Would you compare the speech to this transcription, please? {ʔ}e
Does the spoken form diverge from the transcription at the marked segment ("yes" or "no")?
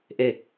no